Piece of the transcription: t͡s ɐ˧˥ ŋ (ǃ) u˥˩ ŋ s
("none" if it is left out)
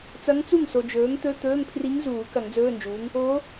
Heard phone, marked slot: t͡s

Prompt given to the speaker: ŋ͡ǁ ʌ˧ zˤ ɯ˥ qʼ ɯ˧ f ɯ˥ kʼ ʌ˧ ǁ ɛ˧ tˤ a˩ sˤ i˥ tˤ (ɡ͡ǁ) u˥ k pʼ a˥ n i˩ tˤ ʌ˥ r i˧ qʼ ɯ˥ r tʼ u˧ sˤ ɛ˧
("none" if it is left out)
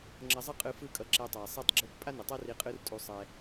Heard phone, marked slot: ɡ͡ǁ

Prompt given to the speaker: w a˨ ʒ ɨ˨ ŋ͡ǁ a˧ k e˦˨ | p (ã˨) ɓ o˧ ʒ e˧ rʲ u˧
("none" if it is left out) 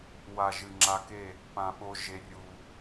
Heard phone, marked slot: ã˨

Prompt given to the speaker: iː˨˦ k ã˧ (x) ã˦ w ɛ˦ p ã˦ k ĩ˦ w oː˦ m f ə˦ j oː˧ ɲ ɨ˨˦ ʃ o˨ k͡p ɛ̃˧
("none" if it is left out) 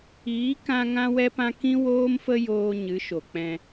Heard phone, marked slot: ŋ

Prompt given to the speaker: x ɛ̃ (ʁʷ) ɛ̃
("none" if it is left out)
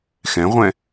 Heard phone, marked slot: ʁʷ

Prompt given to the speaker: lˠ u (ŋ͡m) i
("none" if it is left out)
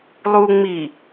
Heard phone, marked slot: ŋ͡m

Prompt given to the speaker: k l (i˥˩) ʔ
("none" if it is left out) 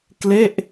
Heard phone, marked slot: e˥˩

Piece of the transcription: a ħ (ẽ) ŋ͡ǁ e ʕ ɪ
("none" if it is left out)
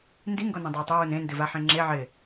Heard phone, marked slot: ẽ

